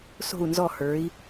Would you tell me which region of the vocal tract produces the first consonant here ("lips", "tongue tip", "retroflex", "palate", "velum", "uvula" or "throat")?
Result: tongue tip